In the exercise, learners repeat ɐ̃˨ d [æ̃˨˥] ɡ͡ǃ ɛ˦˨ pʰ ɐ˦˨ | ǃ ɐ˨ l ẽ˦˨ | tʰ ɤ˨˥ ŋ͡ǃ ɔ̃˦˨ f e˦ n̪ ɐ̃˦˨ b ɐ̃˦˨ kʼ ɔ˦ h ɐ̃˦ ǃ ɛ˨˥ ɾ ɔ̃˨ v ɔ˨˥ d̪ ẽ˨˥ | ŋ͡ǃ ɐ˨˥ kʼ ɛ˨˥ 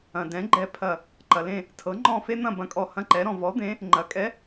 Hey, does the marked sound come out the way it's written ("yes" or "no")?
no